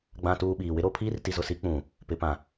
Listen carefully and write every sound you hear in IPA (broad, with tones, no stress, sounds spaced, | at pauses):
ɡ͡b ã˨ t uː˨ ɓ iː˨ w ɪ˦ ɾ o˦ pʰ iː˦ r t i˨ z ʊ˨ s i˨˦ k͡p ũ˨ | p ɪ˨ p ã˨